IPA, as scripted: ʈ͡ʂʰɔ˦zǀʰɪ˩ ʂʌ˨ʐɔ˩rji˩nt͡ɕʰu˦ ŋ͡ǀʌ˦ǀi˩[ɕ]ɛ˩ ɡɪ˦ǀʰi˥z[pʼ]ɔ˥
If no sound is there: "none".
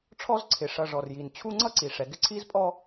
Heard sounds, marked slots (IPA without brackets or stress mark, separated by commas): ʂ, pʼ